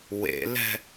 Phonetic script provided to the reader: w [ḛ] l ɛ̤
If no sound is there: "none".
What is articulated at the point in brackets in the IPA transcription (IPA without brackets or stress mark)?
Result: ḛ